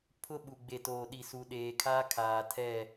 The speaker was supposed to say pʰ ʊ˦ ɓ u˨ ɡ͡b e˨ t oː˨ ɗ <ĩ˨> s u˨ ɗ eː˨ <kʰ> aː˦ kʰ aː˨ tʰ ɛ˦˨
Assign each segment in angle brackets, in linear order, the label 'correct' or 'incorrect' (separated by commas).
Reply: incorrect, correct